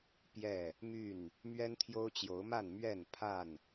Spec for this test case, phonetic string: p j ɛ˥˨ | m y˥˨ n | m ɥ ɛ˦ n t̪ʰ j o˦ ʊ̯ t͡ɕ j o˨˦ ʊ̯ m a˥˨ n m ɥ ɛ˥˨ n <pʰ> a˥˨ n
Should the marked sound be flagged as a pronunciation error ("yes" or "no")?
no